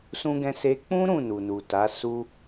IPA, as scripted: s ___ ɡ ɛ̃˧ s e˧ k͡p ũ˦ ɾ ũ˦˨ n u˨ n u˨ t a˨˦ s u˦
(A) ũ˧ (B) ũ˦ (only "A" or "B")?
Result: B